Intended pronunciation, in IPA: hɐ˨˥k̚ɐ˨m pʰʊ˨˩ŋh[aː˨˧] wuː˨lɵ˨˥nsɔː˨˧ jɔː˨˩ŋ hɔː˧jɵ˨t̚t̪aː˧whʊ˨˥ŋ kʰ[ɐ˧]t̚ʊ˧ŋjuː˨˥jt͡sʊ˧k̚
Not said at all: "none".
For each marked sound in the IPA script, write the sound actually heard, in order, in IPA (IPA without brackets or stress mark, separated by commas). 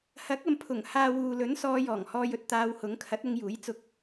aː˧, ɐ˨˥